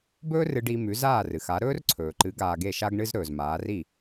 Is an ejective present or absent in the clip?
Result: absent